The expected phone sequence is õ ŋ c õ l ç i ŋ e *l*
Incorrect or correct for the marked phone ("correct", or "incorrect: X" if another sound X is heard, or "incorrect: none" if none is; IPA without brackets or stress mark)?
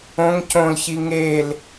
correct